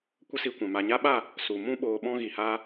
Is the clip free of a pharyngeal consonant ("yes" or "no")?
yes